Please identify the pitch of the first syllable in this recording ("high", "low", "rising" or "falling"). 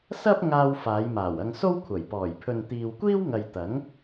high